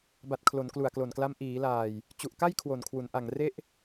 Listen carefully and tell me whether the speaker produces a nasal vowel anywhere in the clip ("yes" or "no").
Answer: no